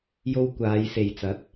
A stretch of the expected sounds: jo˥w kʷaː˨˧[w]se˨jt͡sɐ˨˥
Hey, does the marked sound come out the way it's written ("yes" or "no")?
no